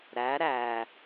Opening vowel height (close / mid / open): open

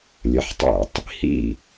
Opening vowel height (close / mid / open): mid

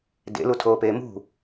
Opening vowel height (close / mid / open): mid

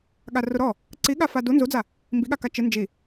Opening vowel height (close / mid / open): open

